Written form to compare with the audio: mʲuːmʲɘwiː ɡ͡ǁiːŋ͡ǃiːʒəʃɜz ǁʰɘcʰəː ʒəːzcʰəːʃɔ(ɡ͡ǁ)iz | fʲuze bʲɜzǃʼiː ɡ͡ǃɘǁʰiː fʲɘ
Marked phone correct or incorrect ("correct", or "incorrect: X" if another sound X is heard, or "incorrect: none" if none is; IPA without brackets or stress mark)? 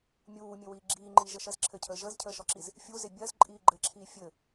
incorrect: ǁ